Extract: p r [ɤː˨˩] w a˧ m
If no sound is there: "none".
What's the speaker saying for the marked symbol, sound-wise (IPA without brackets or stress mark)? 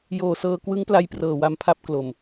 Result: ɤː˨˩